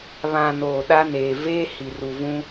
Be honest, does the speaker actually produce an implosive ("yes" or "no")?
yes